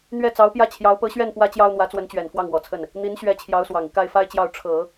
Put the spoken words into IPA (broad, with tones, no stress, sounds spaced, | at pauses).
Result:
n̪ ɥ ɛ˥˩ t͡s ɑ˧˥ ʊ̯ p j ä˥˩ t͡ɕʰ j ɑ˧˥ ʊ̯ p ɤ˧˥ ɕ ɥ ɛ˥˩ n p w ä˥ t͡ɕ j ɑ˥ ʊ̯ n̪ w ä˧˥ t͡s w ə˧˥ n t͡ɕ ɥ ɛ˨˩ n f w ɑ˥˩ ŋ w ɔ˨˩ t͡sʰ ə˥˩ n | n̪ i˧˥ n ɕ ɥ ɛ˧˥ t͡ɕʰ j ɑ˧˥ ʊ̯ s w ɑ˨˩ ŋ i˦ k a˥˩ ɪ̯ f a˥ ɪ̯ t͡ɕ j ɑ˥˩ ʊ̯ ʈ͡ʂʰ ɤ˨˩˦